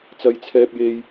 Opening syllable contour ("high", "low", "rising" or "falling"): high